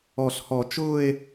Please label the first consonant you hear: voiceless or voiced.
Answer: voiceless